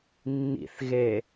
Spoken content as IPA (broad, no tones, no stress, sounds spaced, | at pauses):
nː ḭ θ ɣ e